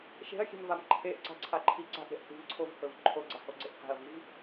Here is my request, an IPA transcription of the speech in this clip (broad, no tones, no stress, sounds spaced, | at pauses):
ʃ e̤ ɐ̯ xʲ e̤ m v a m ǃʰ e ʔ ǀ a̤ ǀʰ a ǃʰ i ǀ a̤ ʔ ɾʲ a̤ ʔ s i̤ v ǀʰ o v h ɵ v ǃʰ o ɡ͡ǀ a h o ɡ͡ǀ e ʔ h a̤ ɐ̯ v i v